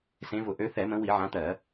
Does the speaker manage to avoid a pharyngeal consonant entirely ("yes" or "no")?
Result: no